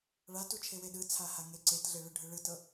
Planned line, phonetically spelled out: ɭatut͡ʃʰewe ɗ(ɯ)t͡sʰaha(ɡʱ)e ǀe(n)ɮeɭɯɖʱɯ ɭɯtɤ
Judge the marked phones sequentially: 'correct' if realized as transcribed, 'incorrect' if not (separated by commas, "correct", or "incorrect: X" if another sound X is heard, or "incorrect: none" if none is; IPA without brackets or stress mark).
correct, incorrect: ŋ, incorrect: t